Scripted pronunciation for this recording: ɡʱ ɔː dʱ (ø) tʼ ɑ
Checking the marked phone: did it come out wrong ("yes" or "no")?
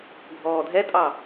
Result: yes